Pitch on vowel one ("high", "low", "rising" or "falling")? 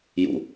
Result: low